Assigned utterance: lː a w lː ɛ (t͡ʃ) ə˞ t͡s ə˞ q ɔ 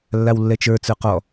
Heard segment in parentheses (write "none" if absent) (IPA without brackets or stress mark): t͡ʃ